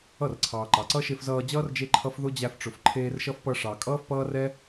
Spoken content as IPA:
ʌ˦˨ r ǀʰ ɑː˨ ǃ ɑ˨ ǀ ʌ˦ ʃ e˧ f z ʌː˧ d͡ʑ ʌː˦ r d͡ʒ e˦ ǃʰ ʌ˦ f ð ʊ˦ d͡ʑ æ˧ f ʈ͡ʂ ʊ˨ f ǃʰ eː˧ r ʃ ʌ˦ f p ʌ˧ ʂ ɑ˨ kʼ ʌː˦ f p ʌː˦ r ɛ˦

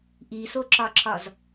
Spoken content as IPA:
ʔ i s o ǁ ɒ ǁ ɒ z

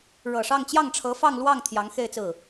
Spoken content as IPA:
ɻ ɤ˨˩ ʂ ɑ˥˧ ŋ t͡ɕ j ɑ˥˩ ŋ ʈ͡ʂʰ ɤ˧˥ f ɑ˥˧ ŋ l w ɑ˥˩ ŋ t̪ʰ j ɑ˧˥ ŋ x e˥˧ ɪ̯ t͡s ɹ̩˥˩

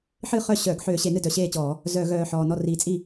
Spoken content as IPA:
ħ ɨ˥˩ χ œ˥˩ ɕ œ˧˩˧ ɡ ħ øː˧˩˧ ɕ e˧˩˧ n ɨ˥˩ d œ˨˩ ɕ eː˥˩ t͡ɕ ɔː˧˩˧ | z œ˧˩˧ ɣ œː˨˩ ħ ɔː˨˩ n ɔ˥˩ r i˨˩ t͡sʼ i˥˩

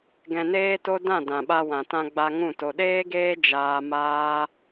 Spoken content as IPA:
ɡ ɛ̃˧ n eː˦ t o˦ d ã˦˨ d ã˨ ɓ a˧ w ã˨ t ã˧ ɡ͡b a˧ ŋ ũ˦˨ t o˧ ɗ eː˦ ɡ eː˦ d͡ʒ aː˦ m aː˦

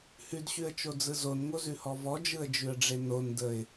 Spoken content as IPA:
h ʉ d ɕ ʉ ə̯ t͡ʃ o d͡z ɯ z o n ŋ o z ʉ h ɔ v ɔ d͡ʒ ɯ ə̯ d͡ʒ ʉ ə̯ ɖ͡ʐ e n o n d ə ɪ̯

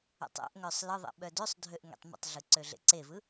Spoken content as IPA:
ɛ̰ tˤ ɛ̰ ʔ ŋ œ sˤ l ə ðˤ ɛ̰ ɓ œ d ø sˤ dʱ ø ʔ ŋ ḛ tˤ m ə̰ tˤ ɮ ɯ ǀ ø ɮ ḛ ǀ e v ɯ

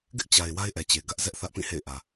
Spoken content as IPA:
ɡ ɪ˦ ʔ t͡ɕ a˨ ɪ̯ w a˦ ɪ̯ ʔ ɛ˨ t͡ɕ e˨ ɡ ä˦ ʔ z ɛ˦ ʔ θ ä˦ ʔ p ĩ˦˨ h ḛ˦˨ ɪ̯ ʔ ä˨

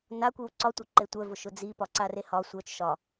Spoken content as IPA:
n a kʷ i w ǀ ɒ tʷ œ ǃ e tʷ œ v ʊ ʃ ʊ d͡z i p ɒ ǀ a r e h ɒ sʷ œ t͡ʃ ʃ ɒ

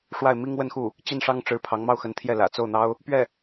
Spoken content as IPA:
ʂ w a˥˩ ɪ̯ m i˥ ŋ w ə˥˧ n x u˥˩ | t͡ɕ i˥˩ n ʂ ɑ˥ ŋ ʈ͡ʂ ɻ̩˧˥ pʰ ɑ˧˥ ŋ m ɑ˥˩ ʊ̯ x ə˧˥ n t̪ʰ j ɛ˥˩ l ä̰˨˩ t͡s o˥˩ ʊ̯ n̪ ɑ˥ ʊ̯ | p ɥ ɛ˥˩

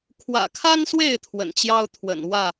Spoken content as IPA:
kʰ w ä̰˨˩ kʰ a˦ n s w e˥˨ ɪ̯ t̪ʰ w ə̰˨˩ n t͡ɕ j ɑ˦ ʊ̯ t̪ʰ w ə̰˨˩ n w ä˥˨

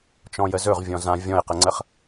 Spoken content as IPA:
t͡ʃ ɔ̃ j ə z ɵ ʁ vʲ ɔ̃ z ã vʲ ɔ̃ e̯ q ə ŋ͡ǀ ə χ

